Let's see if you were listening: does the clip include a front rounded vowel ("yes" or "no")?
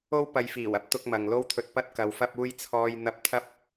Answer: no